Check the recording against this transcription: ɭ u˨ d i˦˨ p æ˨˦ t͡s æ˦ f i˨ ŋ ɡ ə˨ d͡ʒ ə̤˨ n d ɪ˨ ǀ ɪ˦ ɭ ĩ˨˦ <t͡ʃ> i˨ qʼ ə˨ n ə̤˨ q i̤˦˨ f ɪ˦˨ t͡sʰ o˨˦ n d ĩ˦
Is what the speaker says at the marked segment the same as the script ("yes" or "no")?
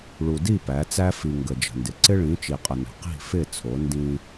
yes